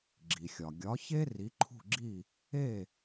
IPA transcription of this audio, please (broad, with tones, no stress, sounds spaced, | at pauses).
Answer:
ɡ͡ǁ i˩ xʲ ɒ˩ ɡʲ ɒ˩˥ ç e˥ r i˩˥ ǃʰ ṳ˥˩ ɡ͡ǁ i˥˩ | e˥˩